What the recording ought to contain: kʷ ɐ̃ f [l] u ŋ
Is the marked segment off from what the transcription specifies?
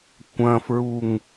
yes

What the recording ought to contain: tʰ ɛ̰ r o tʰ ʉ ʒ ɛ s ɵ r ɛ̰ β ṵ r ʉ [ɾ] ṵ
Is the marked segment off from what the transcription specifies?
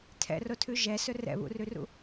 yes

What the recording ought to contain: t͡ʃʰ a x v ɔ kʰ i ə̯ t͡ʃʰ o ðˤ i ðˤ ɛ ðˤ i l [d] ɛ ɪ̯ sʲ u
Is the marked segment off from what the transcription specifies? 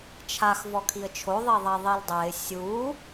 yes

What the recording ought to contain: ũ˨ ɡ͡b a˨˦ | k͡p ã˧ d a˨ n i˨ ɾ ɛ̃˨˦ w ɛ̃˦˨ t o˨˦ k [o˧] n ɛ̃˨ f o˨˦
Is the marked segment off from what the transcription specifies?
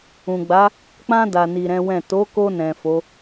no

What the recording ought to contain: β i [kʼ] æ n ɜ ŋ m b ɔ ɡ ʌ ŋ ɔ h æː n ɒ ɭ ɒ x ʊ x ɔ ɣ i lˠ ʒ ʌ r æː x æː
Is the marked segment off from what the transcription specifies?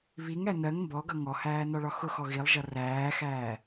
yes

